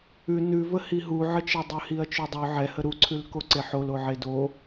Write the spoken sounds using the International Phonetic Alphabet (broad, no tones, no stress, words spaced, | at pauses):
ʉ nʉvə hiɦuʕət͡ʃe dˤʉhiɐ̯t͡ʃʉdˤʉ ʕɛhə ɾuǀʰʉlko ǀeħoloʕe do